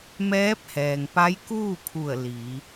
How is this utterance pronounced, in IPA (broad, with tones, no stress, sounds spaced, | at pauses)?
m ɛː˧˥ p̚ h ɛː˩ ŋ p a˧˥ j k uː˥˨ kʰ u˧˩ ə̯ l i˩˧